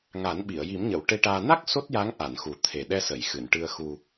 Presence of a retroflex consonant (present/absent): present